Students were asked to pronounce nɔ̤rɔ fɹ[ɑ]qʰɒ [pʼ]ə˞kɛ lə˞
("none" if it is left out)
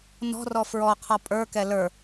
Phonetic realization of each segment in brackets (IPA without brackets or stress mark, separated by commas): ɔ, pʼ